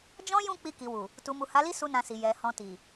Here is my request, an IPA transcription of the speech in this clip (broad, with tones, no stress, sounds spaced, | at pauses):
d͡ʒ ɔ̃˦ j ũ˦˨ k͡p i˧ k i˨ w u˨ | t u˨ m u˨ h a˨˦ l i˦ s u˦ n ã˧ s i˨ j ɛ˨ h ɔ̃˧ t i˨